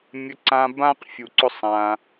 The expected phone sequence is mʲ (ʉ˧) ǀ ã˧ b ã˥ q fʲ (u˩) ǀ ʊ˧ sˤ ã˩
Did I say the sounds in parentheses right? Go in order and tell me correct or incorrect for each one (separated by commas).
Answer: incorrect, correct